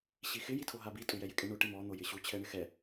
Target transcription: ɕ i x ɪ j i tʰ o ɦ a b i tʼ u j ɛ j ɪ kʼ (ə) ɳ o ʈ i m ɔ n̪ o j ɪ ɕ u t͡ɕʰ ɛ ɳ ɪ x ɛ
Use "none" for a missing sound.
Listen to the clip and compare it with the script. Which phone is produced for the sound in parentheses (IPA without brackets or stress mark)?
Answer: ɪ